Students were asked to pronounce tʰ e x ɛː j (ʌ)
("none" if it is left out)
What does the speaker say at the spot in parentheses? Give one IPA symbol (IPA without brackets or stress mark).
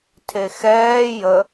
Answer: ə